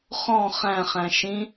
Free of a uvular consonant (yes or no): no